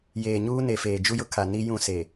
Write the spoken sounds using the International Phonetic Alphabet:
j eː˨ ɲ uː˦ n e˨ f eː˨ d͡ʒ u˦ j ʊ˦ kʰ a˨ n i˦ j ũ˦˨ s e˨

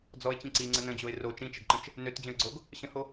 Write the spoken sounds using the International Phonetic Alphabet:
d͡z ɔ ɪ̯ t͡ɕ ĩ ǀ i ŋ͡ǀ ə n ə̃ d͡ʑ o ɪ̯ r o t͡ʃ ĩ t͡ʃ ə ɡ ǃ ə̃ t͡ʃ | n ø t d͡ʑ ə̃ ɪ̯ ɡ͡ǀ o ɡ | ɕ ə̃ h o

